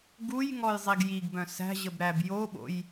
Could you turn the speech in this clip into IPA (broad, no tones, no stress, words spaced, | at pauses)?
ɡujŋɔjzˤiɡ jiɡbœ̃ sæ̤ʑəbɾæb joɓo̰j